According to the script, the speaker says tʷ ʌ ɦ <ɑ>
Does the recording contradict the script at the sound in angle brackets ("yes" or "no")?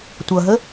yes